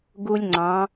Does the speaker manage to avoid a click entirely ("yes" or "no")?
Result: no